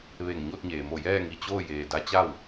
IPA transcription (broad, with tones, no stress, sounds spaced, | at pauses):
ʋ e˧˩ ŋ ɲ o˥˨ t̚ ɲ eː˩ m o˧˩ j ɛː˥˨ ŋ i˧˩ t͡ɕ oː˥˨ j eː˩ d a˧˥ t͡ɕ a˥˨ w